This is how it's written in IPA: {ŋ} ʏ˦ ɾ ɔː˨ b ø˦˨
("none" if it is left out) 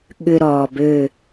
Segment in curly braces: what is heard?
ɠ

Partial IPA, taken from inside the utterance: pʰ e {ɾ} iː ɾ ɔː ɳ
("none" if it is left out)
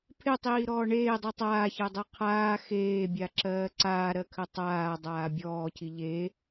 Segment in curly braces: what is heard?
tˤ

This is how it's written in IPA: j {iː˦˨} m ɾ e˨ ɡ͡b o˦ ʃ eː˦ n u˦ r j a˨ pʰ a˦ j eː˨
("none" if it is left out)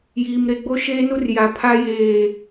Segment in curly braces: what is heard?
iː˨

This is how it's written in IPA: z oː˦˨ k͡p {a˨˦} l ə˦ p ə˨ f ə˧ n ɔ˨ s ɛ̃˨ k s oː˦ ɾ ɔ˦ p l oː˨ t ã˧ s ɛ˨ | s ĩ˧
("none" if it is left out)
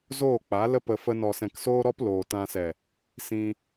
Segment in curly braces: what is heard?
a˨˦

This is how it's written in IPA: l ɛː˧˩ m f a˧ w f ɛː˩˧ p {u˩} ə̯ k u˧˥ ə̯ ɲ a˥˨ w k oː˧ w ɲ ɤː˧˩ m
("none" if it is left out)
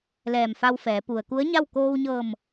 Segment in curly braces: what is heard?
u˩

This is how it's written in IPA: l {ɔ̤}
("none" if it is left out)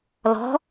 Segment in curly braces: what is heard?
ɔ̤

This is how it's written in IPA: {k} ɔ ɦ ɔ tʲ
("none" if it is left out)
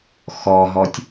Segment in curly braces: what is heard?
x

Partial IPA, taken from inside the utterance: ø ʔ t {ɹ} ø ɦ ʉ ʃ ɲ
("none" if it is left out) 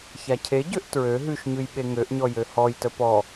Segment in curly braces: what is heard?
ɹ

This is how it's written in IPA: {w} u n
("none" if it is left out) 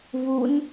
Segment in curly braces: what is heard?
β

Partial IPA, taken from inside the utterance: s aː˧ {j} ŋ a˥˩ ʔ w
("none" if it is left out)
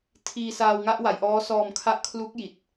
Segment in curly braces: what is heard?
w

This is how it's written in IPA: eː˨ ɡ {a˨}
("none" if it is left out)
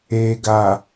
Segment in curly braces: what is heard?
a˨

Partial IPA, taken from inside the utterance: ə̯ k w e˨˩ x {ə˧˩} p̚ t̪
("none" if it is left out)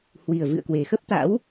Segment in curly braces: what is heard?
ə˦˥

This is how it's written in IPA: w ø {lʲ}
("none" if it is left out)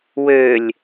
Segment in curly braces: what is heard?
lʲ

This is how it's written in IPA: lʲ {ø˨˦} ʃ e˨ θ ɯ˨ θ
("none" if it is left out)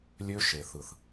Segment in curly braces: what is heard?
ø˦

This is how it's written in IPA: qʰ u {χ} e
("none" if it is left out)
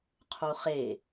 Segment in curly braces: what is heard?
χ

